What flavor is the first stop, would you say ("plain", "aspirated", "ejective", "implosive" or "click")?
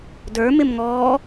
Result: plain